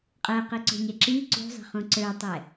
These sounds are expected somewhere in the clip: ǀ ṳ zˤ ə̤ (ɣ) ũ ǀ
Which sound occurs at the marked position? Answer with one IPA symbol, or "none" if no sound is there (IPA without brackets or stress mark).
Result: χ